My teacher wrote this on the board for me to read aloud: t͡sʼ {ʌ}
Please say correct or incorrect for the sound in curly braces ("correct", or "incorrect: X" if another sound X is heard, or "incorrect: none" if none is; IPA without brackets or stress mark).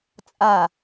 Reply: incorrect: a